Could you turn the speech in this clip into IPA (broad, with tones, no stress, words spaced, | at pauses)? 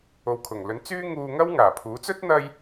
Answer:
o˨wkʰʊ˨˩ŋlɵ˨˥n t͡syː˥ŋuː˧ ŋɐ˥w ŋaː˨˩pʰuː˨˥ t͡sɵ˥t̚n̪ɐ˧j